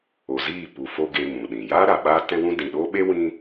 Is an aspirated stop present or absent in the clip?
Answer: absent